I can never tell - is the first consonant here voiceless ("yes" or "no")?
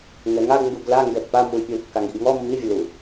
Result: no